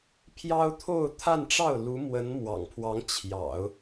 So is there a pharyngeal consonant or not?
no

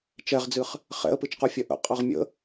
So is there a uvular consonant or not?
yes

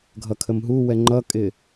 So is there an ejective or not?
yes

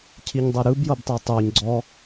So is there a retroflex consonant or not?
no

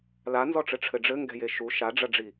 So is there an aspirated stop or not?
yes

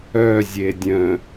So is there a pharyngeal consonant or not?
no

